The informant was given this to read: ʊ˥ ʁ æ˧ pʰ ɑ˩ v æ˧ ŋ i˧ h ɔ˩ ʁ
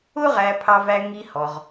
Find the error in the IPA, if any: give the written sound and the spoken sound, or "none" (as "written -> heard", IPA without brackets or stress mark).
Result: ɑ˩ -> ɑ˧